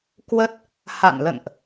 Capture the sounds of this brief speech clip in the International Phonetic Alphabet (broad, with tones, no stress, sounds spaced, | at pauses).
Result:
k w ə˦˥ t̚ | h a̰˧˨ n l ə̰˧˨ n ʔ